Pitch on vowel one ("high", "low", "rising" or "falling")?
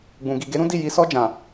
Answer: low